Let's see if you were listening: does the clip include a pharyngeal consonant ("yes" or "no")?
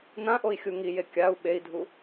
no